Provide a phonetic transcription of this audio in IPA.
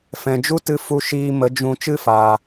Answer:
f ɛ̃˨ d͡ʒ u˦ t ɨ˧ f u˧ ʃ iː˧ m ə˨˦ d͡ʒ ũ˧ t͡ʃ ɨ˦ f aː˨

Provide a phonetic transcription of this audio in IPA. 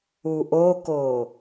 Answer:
u ʔ o k o

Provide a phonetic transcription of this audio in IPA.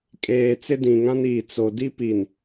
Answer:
kʼ eː˨ t͡s ɪ˦ d ĩ˨ ŋ ã˦ n iː˨ t͡s o˨ d i˦ p i˨ n

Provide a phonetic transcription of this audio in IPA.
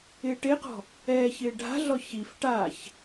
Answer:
ɪː ʈ e q ɔ̤ | ɛː ç ɪː ɖʱ a̤ ɮ ɔ ç i f ʈ a ç

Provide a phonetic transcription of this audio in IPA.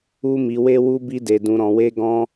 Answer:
u˦ m i˧ w e˦ w u˦ b i˦ d e˧ d ũ˧ ɾ ɔ̃˧ w e˦ ɡ ɔ̃˦

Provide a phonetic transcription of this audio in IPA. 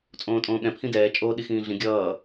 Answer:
t͡sʼ õː tʼ õː ɠ ɛ̃ pʰ ĩ d ɛː t͡ʃʼ oː ɗ i x ĩː ɮ ĩ ɡʲ ʌː

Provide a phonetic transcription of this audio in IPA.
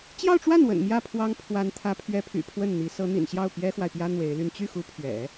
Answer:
t͡ɕ j ɑ˥˧ ʊ̯ ʈ͡ʂ w a˥˩ n w ə̰˨˩ n m j ä˥˩ pʰ w ɑ˥ ŋ pʰ w a˧˥ n t̪ʰ ä˧˥ pʰ ɥ ɛ˧˥ pʰ y̰˨˩ pʰ w ə˥˩ n n̪ i˧˥ s ɤ˧˥ n̪ ḭ˨˩ n ɕ j ɑ˥˩ ʊ̯ p j ɛ˥ x w a˨ ɪ̯ p j ä˥ n̪ w e˧˥ ɪ̯ l y˥˧ n t͡ɕ y˥˩ x u˧˥ pʰ ɥ ɛ̰˨˩˦

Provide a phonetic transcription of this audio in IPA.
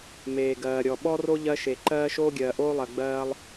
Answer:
m eː˩ ɡ ɜː˩ ɾʲ ɔ˩ ɓ ɔ˥ r o˥ ʎ ɜ˥ ʃ e˩ ǃ ɜː˥ ʃ oː˥ ɡʲ ɜː˩ ʔ oː˥ lˠ ɜ˩ ɡ͡b ɜː˥ lˠ

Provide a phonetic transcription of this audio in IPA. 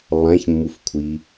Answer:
lˠ æ̃ ç mː u f kʷʰ i

